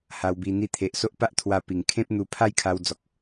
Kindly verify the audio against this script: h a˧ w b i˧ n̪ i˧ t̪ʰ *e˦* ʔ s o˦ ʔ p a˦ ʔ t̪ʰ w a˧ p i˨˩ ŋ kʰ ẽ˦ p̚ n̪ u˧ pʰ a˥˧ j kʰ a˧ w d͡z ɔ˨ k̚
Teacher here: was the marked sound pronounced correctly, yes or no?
no